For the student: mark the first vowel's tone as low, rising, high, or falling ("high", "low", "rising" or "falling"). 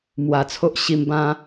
low